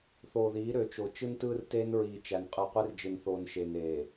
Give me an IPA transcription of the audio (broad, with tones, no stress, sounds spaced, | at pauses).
θ oː˨ ð iː˨˦ ɾ ø˨˦ t͡ʃ o˨ t͡ʃ ɯ˦ n t ɯː˦ r t eː˦ n ɹ iː˨ t͡ʃ æ˨ n qʼ ɯ˨ qʷ e˦ r d͡ʒ ɯ˨ n θ oː˨ n ʃ e˨ n eː˨